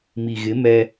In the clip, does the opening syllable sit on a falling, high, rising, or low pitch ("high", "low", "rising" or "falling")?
low